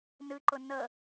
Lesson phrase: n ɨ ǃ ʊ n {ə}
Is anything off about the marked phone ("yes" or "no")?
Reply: no